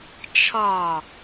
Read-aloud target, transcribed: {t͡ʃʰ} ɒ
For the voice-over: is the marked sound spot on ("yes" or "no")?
yes